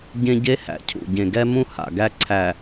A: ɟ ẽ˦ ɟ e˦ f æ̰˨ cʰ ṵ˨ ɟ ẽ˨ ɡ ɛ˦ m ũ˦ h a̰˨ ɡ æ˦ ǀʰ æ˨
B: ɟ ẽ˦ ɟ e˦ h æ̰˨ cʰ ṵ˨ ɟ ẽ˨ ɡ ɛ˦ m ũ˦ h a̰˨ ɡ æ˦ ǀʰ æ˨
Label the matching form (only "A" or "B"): B